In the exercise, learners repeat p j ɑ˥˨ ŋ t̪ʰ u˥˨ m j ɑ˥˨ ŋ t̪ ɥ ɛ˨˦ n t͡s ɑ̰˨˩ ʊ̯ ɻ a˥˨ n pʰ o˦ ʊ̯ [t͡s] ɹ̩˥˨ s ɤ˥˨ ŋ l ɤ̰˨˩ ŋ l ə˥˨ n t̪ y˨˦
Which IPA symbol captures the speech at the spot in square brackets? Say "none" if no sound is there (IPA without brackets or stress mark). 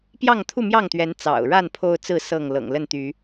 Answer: t͡s